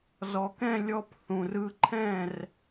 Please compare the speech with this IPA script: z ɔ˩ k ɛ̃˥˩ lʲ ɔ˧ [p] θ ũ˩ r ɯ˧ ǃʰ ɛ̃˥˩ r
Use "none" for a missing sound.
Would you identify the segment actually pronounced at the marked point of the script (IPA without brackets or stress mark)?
p